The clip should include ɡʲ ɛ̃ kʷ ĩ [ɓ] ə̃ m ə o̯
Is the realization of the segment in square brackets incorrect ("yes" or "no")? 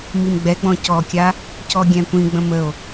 yes